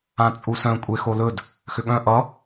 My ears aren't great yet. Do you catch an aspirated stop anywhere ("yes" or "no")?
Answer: no